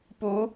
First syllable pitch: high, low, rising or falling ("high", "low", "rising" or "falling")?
rising